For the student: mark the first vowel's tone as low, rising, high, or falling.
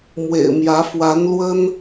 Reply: low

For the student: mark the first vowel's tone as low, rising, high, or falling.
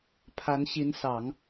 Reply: rising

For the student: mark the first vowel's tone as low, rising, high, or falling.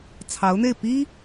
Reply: rising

